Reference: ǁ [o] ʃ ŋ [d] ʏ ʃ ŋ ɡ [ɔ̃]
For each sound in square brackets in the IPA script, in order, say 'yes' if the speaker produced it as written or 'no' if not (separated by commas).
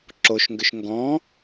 yes, no, yes